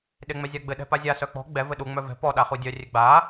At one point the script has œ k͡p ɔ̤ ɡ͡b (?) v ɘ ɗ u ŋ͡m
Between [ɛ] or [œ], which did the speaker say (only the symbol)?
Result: ɛ